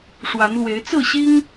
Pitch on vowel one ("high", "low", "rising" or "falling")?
rising